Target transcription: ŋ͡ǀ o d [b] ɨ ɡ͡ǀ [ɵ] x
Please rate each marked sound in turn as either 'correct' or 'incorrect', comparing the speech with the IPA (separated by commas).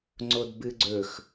correct, correct